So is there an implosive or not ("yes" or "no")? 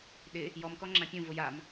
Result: yes